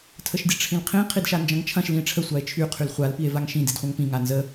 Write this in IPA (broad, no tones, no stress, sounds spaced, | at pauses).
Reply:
tʰ ə ʃ dʲ ɐ ʈ͡ʂʰ ĩ l qʰ ĩ qʰ i d ʃ a n d͡ʒ ɐ̃ ŋ t͡ʃʰ ɐ̃ ʃ l ĩ e̯ ʈ͡ʂʰ ə sʷ a e̯ t͡ʃʰ y qʰ y l χʷ a l p i e̯ v a ŋ ʃ ĩ d i d χʷ ɐ̃ ŋ p ĩ ŋ a n z ə